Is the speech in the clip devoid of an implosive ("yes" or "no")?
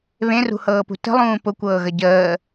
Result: yes